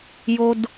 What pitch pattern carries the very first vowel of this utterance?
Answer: low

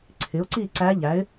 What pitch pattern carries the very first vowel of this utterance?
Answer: rising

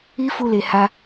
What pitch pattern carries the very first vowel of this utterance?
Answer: high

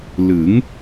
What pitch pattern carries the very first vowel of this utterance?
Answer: rising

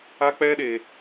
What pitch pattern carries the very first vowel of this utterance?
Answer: high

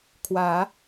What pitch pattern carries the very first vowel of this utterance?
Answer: rising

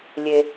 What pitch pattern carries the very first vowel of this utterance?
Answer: low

